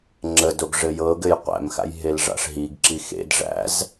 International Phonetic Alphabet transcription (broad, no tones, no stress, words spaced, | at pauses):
ŋ͡ǁədoɡ ʐɘjɤɡɘj qʷæ̰mxa̰j ɦelʐa̰ʂɦiɡǁi xḛd ʐæ̰z